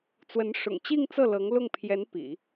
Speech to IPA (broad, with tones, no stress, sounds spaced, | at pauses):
t͡s w ə˧˥ n ʂ ʊ̰˨˩ ŋ t͡ɕ i˥˧ ŋ t͡s ɤ˥˩ l ɤ˧˥ ŋ l ʊ˥˩ ŋ pʰ j ɛ˧˥ n p ḭ˨˩˦